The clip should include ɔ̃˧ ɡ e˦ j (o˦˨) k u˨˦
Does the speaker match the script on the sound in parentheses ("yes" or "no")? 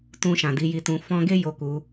yes